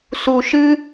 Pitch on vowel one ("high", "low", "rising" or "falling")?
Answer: low